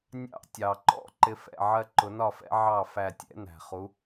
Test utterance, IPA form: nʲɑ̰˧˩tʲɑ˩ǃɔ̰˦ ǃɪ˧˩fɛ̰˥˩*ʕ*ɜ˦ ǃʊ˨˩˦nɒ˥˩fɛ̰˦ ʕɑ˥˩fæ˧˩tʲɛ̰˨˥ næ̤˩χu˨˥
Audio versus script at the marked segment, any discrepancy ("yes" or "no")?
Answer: no